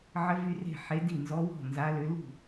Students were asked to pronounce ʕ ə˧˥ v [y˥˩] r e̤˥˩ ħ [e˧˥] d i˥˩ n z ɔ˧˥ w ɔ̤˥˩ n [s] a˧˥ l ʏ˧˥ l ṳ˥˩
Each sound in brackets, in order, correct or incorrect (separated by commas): incorrect, correct, incorrect